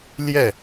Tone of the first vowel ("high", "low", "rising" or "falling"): falling